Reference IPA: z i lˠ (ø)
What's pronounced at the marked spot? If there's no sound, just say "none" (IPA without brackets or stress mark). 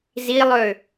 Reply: ø